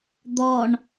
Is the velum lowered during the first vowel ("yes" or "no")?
no